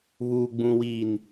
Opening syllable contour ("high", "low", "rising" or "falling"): low